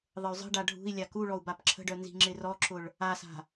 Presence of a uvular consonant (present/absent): absent